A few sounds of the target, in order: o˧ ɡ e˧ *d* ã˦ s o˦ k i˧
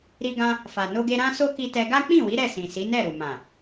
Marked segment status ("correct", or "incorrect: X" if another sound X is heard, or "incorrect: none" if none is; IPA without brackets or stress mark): incorrect: ɾ